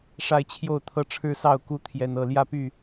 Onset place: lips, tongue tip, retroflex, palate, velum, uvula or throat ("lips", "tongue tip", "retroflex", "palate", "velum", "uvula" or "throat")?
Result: retroflex